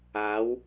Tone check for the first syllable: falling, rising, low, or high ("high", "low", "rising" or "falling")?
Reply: rising